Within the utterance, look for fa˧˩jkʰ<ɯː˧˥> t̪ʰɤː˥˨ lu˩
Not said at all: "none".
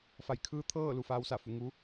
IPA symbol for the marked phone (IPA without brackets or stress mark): ɯː˧˥